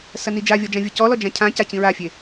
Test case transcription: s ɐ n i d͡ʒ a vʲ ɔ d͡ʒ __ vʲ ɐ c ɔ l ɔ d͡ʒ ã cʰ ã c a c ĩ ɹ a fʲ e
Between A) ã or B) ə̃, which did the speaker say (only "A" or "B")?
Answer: A